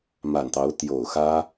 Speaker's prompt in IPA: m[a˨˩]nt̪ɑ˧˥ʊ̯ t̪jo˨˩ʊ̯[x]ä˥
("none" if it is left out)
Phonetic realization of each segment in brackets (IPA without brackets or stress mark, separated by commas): a˨˩, x